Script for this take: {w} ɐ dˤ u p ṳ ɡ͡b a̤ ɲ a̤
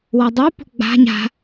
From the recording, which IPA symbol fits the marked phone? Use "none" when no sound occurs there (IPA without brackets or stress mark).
w